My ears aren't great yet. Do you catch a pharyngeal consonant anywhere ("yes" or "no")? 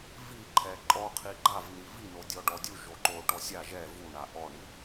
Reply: no